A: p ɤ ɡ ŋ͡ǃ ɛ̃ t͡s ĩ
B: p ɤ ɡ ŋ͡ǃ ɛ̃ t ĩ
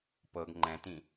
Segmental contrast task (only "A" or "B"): B